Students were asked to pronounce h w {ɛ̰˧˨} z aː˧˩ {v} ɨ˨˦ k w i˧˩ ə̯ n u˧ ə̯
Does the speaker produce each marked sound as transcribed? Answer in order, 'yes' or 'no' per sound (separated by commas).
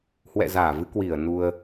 yes, yes